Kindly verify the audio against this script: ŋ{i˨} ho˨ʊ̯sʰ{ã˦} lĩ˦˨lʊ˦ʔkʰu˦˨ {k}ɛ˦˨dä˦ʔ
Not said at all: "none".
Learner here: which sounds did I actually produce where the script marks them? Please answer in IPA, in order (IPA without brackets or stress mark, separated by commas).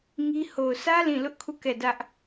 i˦, ä˦, k